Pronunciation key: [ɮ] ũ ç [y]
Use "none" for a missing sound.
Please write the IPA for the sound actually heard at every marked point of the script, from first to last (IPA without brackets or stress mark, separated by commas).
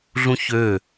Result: ɮ, ø